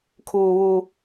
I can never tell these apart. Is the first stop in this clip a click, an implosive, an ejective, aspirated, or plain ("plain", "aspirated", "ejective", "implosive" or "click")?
aspirated